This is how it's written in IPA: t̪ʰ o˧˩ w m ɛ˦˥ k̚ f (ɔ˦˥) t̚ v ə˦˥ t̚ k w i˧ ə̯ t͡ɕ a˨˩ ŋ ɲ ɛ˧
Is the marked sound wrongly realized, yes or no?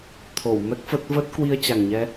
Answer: yes